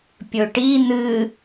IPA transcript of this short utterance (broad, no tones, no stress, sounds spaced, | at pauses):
pʲ ɵ ʈ i n̪ ɨ